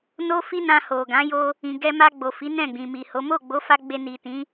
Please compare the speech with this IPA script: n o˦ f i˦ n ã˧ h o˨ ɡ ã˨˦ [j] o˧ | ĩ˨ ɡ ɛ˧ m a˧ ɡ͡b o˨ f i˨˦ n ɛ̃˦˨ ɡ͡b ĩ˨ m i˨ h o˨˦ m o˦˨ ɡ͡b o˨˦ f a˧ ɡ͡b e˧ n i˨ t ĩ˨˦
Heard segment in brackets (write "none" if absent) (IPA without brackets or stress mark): j